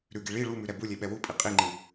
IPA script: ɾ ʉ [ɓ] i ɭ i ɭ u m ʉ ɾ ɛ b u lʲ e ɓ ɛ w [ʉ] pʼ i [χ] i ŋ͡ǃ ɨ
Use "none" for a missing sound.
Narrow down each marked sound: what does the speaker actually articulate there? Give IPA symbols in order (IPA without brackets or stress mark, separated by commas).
ɡ, u, qʼ